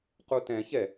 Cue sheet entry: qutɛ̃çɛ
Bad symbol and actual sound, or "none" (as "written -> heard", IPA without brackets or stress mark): none